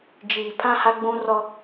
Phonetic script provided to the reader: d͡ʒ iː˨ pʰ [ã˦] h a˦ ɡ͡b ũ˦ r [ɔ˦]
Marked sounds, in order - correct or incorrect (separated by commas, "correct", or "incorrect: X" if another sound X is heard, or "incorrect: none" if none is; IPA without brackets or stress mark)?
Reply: correct, correct